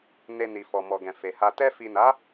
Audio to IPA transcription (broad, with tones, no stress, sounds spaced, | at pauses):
n e˧ n i˨ f ɔ˨ m ɔ˨ ɡ ɛ̃˨ f e˨ h a˧ t ɛ˧ f i˨ n a˨˦